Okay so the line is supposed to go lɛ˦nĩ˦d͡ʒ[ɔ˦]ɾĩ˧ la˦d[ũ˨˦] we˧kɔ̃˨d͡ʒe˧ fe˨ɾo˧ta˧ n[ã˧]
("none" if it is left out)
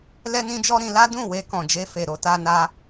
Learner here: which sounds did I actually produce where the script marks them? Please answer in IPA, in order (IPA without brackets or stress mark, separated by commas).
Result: ɔ˦, ũ˦˨, a˧